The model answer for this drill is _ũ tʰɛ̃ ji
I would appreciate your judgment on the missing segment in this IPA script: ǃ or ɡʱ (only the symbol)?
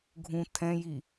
ɡʱ